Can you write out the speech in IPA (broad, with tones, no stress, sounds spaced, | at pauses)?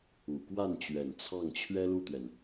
u˨˩ k w a˥˩ n t͡ɕ ɥ ɛ˨˩ n t͡sʰ ɑ˥˩ ŋ t͡ɕʰ ɥ ɛ˥ l u˥˩ t̪ ɥ ɛ˩ n